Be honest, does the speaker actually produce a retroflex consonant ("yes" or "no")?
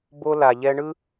yes